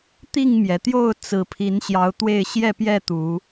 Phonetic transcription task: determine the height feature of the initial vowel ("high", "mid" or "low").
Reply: high